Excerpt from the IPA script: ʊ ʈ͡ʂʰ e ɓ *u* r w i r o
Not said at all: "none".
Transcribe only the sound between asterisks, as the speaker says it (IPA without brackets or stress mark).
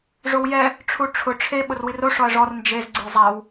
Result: ʊ